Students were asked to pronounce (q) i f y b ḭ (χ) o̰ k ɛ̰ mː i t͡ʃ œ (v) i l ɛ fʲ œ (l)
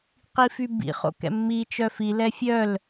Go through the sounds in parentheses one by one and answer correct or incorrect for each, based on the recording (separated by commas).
correct, correct, incorrect, correct